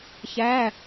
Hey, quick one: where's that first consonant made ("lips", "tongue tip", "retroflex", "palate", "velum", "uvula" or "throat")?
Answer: palate